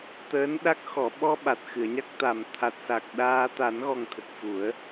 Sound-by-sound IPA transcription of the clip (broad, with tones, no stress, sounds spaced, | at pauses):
t̪ əː˧˥ n ɗ a˦˥ k̚ x ɔ˨˩˨ ɓ ɔ˧ ɓ a˨˩ t̚ x ɨ˨˩˨ ə̯ ɲ a˦˥ k̚ t̪ a˨˩ m t̪ʰ a˨˩ t̚ s a˨˩ k̚ ɗ aː˧ t̪ a˨˩˦ n ɣ ɔ˨˩ ŋ t̪ʰ ə˨˩ k̚ f u˨˩˦ ə̯